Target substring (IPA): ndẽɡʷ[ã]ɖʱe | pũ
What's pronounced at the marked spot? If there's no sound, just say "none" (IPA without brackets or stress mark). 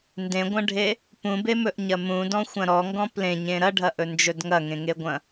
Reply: ɐ̃